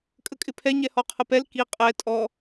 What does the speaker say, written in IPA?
kʼ ə kʼ ɪ pʰ ɛ ɲ ɛ h ɔ qʰ ə p ɛ l k i qʼ ɛ tʼ ɔ

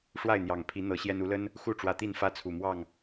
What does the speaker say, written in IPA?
ʂ w a˥˨ ɪ̯ n̪ j ɑ˨˩ ŋ pʰ i˨˦ n̪ ɤ˨˦ ɕ j ɛ˦ n u˨˦ l ə˦ n | x u˥˨ ʈ͡ʂ w ä˨˦ t̪ i˥˨ n f ä˦ t͡sʰ u˨˩ m w ɑ˥˨ ŋ

